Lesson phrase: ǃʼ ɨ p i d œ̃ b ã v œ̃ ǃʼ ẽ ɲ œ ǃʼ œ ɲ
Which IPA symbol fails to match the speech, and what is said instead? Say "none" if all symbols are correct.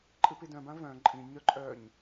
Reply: ẽ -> ĩ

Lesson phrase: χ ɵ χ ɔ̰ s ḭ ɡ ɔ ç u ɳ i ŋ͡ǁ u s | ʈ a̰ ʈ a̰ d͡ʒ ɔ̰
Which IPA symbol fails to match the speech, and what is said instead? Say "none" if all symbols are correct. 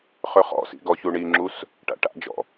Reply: none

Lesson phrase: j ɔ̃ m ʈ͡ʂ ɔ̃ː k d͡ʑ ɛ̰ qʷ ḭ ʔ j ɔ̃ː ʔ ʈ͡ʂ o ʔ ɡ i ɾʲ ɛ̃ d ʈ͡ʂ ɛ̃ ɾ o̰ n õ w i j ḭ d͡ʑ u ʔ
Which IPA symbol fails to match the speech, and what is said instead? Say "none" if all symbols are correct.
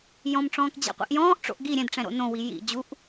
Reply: o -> o̰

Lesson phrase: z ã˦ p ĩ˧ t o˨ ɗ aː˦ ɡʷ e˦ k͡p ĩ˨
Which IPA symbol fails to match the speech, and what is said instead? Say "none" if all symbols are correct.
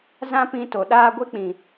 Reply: none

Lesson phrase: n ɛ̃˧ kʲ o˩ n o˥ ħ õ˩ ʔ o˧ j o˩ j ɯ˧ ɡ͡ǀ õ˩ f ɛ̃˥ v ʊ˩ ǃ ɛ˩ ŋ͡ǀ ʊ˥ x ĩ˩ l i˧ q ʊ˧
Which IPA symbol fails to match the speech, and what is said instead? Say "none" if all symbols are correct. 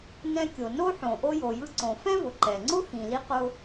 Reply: ɡ͡ǀ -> ǀ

